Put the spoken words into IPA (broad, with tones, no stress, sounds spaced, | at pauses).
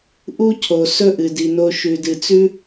ʔ u˦ cʰ o˨ s ɵ˦ ʔ ɨ˨ d i˨ n o˧ ʃ ʉ˨ d ɨ˨ t͡s ʉ˦